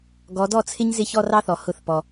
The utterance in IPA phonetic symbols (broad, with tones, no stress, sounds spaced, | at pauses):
ɡ ɔ˨˦ d ɔ˥˩ t͡sʰ ɪ˦˥ ɲ z ɪ˥˩ ç ɔ˥˧ r ɑ˦˥ θ ɔ˩ h ʊ˧˩˧ θ p ɔ˩